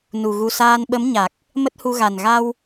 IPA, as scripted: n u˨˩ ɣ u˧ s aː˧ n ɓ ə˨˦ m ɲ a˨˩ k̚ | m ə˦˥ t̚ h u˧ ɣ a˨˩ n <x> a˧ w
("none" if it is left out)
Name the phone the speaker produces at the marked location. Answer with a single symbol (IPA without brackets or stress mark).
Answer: ɣ